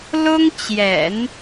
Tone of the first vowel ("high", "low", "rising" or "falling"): high